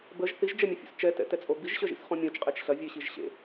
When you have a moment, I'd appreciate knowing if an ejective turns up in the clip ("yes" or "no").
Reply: yes